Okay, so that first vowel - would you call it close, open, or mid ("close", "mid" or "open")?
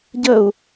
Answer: mid